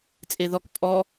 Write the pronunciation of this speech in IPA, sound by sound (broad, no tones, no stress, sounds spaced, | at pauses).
t͡sʼ e ð ɔ k pʼ ɔ